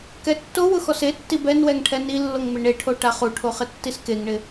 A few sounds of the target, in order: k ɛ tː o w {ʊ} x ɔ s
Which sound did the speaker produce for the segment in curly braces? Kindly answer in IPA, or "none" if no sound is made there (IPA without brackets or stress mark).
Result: ʊ